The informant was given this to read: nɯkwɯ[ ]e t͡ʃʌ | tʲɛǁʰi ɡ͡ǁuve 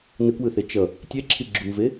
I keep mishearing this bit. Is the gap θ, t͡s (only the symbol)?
θ